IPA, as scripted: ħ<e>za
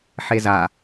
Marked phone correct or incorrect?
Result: correct